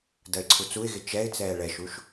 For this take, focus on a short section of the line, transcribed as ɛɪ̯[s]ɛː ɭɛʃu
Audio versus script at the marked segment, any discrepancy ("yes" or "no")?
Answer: yes